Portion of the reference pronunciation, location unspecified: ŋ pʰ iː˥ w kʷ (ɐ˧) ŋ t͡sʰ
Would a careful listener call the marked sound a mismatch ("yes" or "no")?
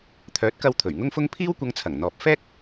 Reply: no